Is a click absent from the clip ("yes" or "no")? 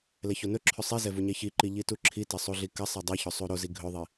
no